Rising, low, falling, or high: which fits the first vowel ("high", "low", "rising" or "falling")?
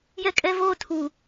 high